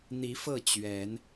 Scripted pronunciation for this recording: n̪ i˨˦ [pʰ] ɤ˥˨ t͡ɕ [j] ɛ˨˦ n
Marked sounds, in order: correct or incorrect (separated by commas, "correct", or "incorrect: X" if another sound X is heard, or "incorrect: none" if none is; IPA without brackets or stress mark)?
incorrect: f, incorrect: ɥ